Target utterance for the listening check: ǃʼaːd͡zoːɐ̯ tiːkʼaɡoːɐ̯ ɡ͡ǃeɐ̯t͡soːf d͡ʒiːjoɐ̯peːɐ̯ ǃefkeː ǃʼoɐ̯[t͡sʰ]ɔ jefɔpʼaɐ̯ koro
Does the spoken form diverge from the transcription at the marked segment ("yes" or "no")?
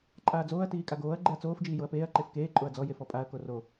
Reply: yes